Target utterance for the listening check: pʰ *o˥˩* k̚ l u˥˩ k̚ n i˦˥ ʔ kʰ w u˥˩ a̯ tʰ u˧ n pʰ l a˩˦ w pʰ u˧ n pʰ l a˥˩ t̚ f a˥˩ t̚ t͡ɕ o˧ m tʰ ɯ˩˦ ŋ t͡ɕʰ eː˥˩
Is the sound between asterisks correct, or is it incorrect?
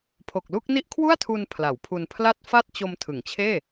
incorrect